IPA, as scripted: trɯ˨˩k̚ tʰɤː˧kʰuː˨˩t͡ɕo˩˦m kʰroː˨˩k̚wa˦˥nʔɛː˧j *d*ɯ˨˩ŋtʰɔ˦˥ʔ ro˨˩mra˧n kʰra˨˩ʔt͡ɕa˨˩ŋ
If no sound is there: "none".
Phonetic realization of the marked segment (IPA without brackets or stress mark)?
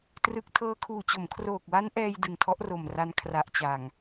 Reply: d